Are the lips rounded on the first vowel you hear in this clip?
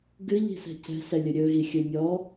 no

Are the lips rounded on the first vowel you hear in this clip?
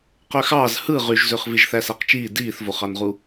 yes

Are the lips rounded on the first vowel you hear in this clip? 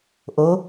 yes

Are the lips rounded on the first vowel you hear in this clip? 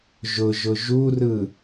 yes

